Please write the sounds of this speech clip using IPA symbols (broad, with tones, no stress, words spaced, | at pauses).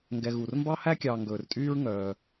ŋɡɛ˨ɣu˩r mbɑ˥hæ˥kʲɑː˨ ŋɡɵː˩rtʼyː˦ɹŋœː˩